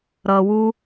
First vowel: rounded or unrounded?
unrounded